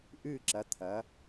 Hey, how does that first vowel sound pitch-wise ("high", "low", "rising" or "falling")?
falling